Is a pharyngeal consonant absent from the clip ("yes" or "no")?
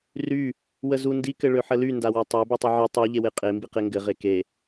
no